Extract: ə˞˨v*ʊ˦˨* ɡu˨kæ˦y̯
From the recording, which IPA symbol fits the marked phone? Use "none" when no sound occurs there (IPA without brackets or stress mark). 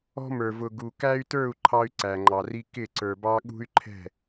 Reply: ʊ˨